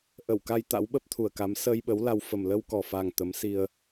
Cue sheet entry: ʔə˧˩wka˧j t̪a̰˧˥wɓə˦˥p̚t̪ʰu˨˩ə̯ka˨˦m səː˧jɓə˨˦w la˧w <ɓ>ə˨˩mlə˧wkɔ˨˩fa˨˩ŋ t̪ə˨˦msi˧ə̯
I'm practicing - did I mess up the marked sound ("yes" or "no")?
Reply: yes